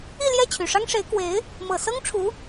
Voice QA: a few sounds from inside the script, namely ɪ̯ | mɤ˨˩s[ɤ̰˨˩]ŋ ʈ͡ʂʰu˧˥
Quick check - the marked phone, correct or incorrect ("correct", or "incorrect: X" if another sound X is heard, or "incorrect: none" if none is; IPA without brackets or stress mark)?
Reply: incorrect: ɤ˥